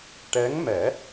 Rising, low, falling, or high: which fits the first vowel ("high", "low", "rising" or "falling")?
rising